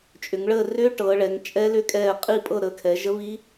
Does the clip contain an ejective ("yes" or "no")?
yes